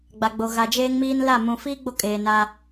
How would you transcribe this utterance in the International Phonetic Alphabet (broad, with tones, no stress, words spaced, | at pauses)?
ɡ͡ba˨ɡ͡bo˨ ɣa˨d͡ʒeː˦ŋmiː˦n la˦˨ mũ˨fiː˦ ɡ͡bo˦ kʼeː˨naː˦